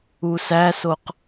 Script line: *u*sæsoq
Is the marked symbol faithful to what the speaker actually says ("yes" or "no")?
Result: yes